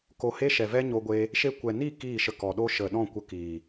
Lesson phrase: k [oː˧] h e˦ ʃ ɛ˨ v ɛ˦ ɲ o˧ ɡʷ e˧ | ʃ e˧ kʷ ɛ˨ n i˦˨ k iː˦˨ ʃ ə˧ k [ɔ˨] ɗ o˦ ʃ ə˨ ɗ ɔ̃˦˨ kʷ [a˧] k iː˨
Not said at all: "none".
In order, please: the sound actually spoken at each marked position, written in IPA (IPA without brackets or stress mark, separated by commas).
o˧, ɔ˨, ə˧